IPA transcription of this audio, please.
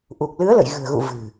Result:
ʔ u˨˩ k̚ l ɨ˨˦ ə̯ l ə̰˧˨ j ɣ ɨ̤˨˩ ə̯ ɣ ṵ˧˨ v ɨ̤˨˩

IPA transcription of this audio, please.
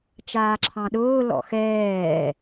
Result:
t͡ʃ aː ǁʰ ɑ̃ ɗ ʊː l ɔ̰ x ɛː

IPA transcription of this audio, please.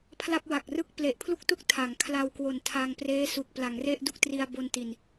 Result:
pʰ l a˥˩ p̚ w a˨˩ k̚ r ɯ˥˩ k̚ p l e˨˩ ʔ pʰ l u˥˩ k̚ t u˥˩ k̚ tʰ a˩˦ ŋ kʰ l a˧ w k w o˨˩ n tʰ a˧ ŋ p r eː˦˥ s u˨˩ k̚ p l a˩˦ ŋ r e˥˩ ʔ d u˥˩ k̚ t r i˧ a̯ b o˧ n t i˨˩ n

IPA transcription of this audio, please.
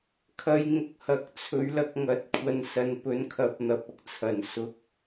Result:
kʰ ɐ˨˧ j ŋ ʊ˨ k̚ h ɐ˨ k̚ t͡sʰ ɵ˨˥ ɥ l ɐ˧ k̚ ŋ ɐ˨˥ t̚ kʷʰ ɐ˧ n s ɐ˨ n p ɵ˨˥ n kʰ ɐ˨˥ p̚ n̪ ɐ˨ p̚ ɐ˧ k̚ t͡sʰ ɐ˨˩ n s ʊ˧ k̚

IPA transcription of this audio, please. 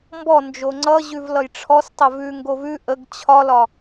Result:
m b ɔ n d͡ʒ o ŋ͡ǀ ʌ ʑ ʉ v l ʌ j ʈ͡ʂʰ ɔ s tˤ ə v ʉ ŋ ɡ o v ʉ ʔ ə ɡ t͡ɕʰ ɒ l ɒ

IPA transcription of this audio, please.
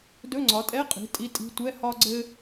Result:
d ɵ˧˥˧ ŋ͡ǀ ɒ˩˥ tʼ ɛ˧˥˧ qʼ i̤˩˥ tʼ i˧˥˧ tʼ i̤˧˥˧ tʷ ɛ˧˥˧ h ɒ˥ ɡ͡ǀ ɘ˥

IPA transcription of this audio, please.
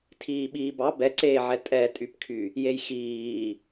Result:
tʰ iː ɓ iː b ɑ b ɛ ǀ eː ʕ ɛ tʼ ɛ tʼ y p kʰ y | j e j x iː

